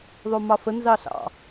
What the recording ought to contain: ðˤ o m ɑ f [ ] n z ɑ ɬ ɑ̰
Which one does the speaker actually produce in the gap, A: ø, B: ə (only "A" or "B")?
B